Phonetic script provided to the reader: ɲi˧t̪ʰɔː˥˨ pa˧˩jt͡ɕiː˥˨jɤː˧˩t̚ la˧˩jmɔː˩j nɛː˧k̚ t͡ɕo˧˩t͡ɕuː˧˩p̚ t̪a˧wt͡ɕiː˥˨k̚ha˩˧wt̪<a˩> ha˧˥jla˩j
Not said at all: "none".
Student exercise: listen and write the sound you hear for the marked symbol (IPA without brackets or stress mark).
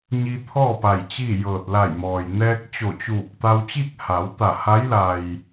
a˧˩